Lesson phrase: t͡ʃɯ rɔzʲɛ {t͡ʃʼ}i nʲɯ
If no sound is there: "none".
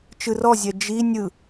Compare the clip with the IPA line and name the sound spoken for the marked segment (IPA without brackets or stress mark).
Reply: d͡ʒ